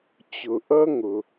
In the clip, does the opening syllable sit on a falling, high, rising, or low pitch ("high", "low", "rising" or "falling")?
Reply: low